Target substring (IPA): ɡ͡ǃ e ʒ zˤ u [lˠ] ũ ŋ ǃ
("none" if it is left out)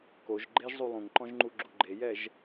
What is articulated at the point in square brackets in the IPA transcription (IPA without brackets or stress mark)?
lˠ